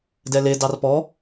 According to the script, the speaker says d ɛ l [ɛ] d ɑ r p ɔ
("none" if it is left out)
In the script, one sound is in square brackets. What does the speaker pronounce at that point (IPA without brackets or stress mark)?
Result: e